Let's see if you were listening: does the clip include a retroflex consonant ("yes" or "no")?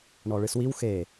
yes